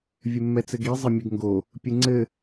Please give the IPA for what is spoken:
vʲ ɘ mː ɛ t͡s ɘ ɡ i zˤ ɘ mʲ ɘ ɡ ŋ ɡ o | pʲ ɨ ŋ͡ǀ ɘ

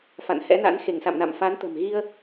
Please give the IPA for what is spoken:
f a̰˧˨ n h ɛ̰˧˥ n a̰˧˥ n x e˧˩ ŋ s a̰˧˨ m n a̰˧˨ m f a˨˦ n t̪ ə̤˨˩ m ɣ i˧ ə̯

